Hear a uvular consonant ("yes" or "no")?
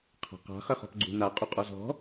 yes